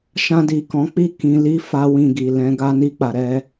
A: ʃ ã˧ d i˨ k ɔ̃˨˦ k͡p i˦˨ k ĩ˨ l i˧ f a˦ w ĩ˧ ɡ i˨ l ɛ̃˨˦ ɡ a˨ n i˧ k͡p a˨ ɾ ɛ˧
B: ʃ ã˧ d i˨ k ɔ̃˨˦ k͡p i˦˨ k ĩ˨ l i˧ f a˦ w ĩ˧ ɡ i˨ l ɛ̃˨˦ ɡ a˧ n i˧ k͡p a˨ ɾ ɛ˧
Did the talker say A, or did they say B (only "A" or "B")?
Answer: B